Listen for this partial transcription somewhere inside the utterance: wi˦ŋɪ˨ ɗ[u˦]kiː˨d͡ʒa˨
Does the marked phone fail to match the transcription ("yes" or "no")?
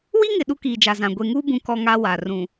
no